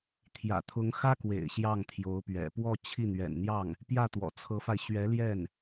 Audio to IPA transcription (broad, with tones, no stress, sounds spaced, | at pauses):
t̪ʰ j ä̰˨˩ t̪ʰ ʊ˧˥ ŋ x ä˥ k w ḛ˨˩ ɪ̯ ɕ j ɑ˥˩ ŋ t̪ʰ j o˧˥ ʊ̯ p ɥ ɛ̰˨˩ p w ɔ˥˧ t͡ɕʰ i˥˩ n̪ ɥ ɛ̰˨˩ n n̪ j ɑ˥˩ ŋ | p j ä˥˩ t̪ w ɔ̰˨˩ t͡sʰ ɤ˧˥ f a˧ ɪ̯ ɕ ɥ ɛ˧˥ l j ɛ˥˩ n